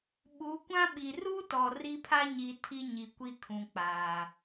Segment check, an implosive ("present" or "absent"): present